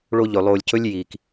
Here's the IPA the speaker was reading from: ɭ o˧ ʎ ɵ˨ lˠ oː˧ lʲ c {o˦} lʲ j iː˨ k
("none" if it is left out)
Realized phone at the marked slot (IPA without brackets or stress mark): ɵ˦